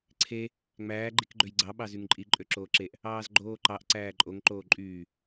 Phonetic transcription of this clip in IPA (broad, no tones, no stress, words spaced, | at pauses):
ǀʰe | ŋ͡mæː ɡ͡ǃikɡ͡ǃøjɡ͡ǀɑ ɓɑzyŋǃʼi ǃʼøǁoːǁeʔ | ɑːzɡ͡ǃoːǃɑʔ ǀæːǃʼoŋ ǃoːǃʼyː